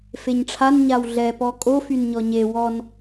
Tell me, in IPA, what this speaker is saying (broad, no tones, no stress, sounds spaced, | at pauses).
f e ɲ ʈ͡ʂʰ a n ɲ a w ɮ ɛ p ɔ kʼ o f y n ɲ ɔ ɲ e w ɔ n